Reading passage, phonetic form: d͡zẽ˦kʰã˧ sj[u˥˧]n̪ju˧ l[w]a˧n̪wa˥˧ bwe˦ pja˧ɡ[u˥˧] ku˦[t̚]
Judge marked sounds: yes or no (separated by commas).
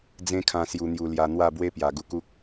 no, no, yes, no